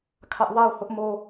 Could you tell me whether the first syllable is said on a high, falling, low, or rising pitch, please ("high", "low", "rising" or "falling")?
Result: high